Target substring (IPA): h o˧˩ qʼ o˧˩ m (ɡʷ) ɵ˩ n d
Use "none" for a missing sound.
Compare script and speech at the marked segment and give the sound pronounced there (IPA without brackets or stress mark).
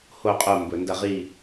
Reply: b